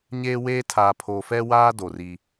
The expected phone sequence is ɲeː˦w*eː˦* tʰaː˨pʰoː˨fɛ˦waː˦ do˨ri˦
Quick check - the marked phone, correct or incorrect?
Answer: correct